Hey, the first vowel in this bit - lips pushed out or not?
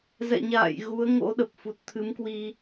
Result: no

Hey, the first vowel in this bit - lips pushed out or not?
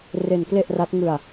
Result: no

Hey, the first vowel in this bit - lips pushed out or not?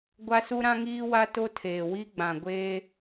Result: no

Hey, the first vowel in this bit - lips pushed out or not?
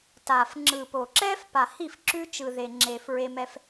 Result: no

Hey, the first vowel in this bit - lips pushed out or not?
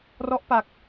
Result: yes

